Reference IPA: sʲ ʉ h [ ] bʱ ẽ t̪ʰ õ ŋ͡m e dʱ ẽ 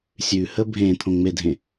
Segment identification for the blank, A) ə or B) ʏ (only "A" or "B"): A